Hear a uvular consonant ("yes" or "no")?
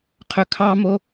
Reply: yes